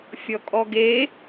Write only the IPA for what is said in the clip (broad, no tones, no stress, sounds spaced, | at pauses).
fʲ ɔ kʼ ɔ ɡ e